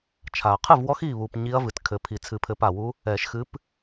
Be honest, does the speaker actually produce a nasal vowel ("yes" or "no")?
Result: no